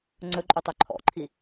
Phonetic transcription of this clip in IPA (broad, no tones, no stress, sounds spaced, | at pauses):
ŋ͡ǀ ɵ ǃʼ u tˤ ø ǃʰ ɔ̰ ǃʰ i